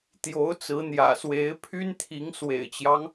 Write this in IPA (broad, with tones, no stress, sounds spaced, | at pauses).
t̪ j o˧˥ ʊ̯ t͡s ɹ̩˧˥ n̪ j ä̰˨˩ s w e˧˥ ɪ̯ pʰ y˥ n t̪ʰ i˧˥ ŋ s w ḛ˨˩ ɪ̯ t͡ɕ j ɑ˦ ŋ